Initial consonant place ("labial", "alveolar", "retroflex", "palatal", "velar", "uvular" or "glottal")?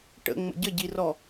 retroflex